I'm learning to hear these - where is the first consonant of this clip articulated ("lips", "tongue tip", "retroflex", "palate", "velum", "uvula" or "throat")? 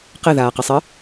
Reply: uvula